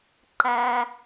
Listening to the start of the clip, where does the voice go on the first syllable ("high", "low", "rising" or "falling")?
low